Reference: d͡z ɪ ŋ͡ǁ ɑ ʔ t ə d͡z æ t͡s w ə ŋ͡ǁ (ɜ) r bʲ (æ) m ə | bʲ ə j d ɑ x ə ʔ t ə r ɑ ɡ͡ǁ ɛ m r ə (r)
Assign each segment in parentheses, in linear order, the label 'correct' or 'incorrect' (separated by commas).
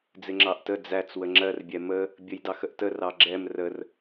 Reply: correct, incorrect, correct